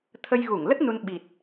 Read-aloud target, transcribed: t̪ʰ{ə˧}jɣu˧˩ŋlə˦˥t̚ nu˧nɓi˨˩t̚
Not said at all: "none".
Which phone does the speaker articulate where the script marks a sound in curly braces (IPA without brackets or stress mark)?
ə˧